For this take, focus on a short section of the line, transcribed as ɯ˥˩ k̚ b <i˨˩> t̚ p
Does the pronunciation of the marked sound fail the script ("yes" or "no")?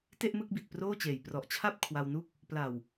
no